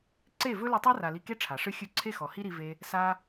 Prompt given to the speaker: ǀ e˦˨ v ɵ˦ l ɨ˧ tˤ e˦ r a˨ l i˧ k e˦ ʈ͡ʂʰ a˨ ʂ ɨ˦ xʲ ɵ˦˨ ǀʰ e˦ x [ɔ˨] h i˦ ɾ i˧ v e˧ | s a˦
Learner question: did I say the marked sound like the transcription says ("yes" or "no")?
yes